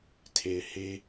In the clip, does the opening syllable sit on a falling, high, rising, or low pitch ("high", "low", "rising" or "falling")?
low